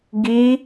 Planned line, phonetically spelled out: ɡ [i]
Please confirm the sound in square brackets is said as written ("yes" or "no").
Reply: yes